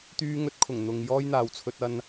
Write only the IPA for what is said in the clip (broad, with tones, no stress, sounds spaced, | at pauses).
t̪ yː˥ ŋ ɵ˥ t̚ kʰ ʊ˨˩ ŋ n̪ ʊ˧ ŋ j ɔː˥ j n̪ aː˨ w t͡sʰ ɵ˧ t̚ ɐ˧ n